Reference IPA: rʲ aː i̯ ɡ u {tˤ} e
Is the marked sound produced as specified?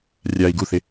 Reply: no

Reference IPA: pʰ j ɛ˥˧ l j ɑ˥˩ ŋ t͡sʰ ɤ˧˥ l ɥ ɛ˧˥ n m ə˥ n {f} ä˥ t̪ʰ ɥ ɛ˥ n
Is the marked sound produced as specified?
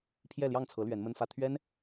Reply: yes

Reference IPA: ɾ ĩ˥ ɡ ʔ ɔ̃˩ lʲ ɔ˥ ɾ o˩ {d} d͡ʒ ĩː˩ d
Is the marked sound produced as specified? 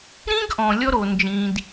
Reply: no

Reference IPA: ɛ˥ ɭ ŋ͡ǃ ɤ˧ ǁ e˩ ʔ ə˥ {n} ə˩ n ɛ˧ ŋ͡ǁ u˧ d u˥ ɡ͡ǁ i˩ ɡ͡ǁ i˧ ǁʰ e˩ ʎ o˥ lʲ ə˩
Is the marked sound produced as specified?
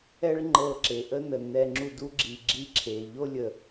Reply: yes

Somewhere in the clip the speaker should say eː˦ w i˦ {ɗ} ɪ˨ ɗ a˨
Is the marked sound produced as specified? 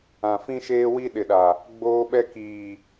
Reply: yes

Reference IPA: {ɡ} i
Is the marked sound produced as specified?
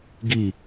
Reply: yes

